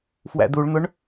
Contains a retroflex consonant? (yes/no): yes